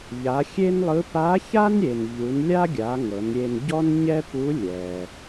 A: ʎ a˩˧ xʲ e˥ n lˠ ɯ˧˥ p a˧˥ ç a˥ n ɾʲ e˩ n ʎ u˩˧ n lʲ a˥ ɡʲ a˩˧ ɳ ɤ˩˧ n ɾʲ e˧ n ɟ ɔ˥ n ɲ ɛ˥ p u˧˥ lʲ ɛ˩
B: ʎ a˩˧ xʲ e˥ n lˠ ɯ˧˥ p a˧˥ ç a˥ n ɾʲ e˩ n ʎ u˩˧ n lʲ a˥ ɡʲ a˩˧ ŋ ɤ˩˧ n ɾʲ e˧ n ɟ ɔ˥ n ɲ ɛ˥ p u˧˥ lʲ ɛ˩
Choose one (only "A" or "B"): B